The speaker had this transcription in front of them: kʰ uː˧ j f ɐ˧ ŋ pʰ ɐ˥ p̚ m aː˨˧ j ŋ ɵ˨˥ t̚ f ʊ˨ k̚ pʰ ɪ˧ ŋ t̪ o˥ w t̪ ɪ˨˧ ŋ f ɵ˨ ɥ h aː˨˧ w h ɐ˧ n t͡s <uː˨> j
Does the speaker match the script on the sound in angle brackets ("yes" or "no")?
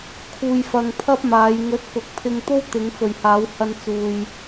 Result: no